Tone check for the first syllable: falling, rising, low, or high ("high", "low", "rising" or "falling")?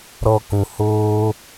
high